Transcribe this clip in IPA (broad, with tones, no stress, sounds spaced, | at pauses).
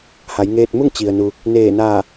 h a˩˧ j ŋ eː˧ t̚ m u˥˨ ŋ t͡ɕ i˩ ə̯ n u˩ | n eː˧˩ n aː˧˩